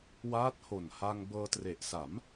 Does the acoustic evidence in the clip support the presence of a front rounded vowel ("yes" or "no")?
no